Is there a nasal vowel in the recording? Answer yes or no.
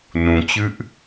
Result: yes